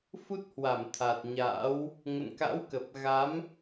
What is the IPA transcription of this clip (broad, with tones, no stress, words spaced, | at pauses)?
fu˦˥t̚hwa˧˩mt̪ʰa˨˩t̚ɲa̰ː˧˥w | ŋə̰˧˨nka̰˧˥wkə˨˩p̚ ɣa˨˦m